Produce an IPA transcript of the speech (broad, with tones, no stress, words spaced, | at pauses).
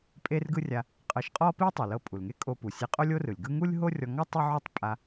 pʼe˥rɡɯ˥rʲa˧ | qʼɤ˧ʃqʼɔ˥pi˥ tˤi˩lɤ˧pʼu˩lŋe˥ kʼo˧pu˩sʲe˧ qʼo˥lʲo˥rɯ˩lʲɡɯ˥ ŋu˥lʲɦo˥rʲɔ˧ ŋɔ˥ tˤɯ˥ʕo˥tˤpʼa˧